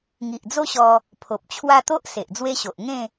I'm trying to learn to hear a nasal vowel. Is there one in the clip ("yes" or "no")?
yes